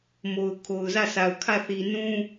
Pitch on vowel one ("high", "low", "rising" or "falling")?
low